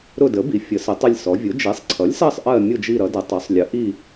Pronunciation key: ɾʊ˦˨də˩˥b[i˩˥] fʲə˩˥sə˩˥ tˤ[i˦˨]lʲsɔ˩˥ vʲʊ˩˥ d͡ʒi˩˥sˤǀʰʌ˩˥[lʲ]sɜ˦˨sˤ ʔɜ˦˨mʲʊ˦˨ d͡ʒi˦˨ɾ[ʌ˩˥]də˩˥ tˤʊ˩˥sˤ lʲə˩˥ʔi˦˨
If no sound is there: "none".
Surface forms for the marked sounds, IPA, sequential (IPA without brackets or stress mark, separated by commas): i˩˥, i˦˨, lʲ, ʌ˩˥